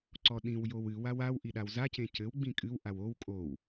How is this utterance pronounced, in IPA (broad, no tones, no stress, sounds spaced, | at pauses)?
ǀ ɔ ɗ ĩ w j o w ɨ w a w a w ʔ i ɗ a w z a c ẽ c ɘ w ɡ͡b ĩ kʼ ɨ w ʔ a w o w kʼ o w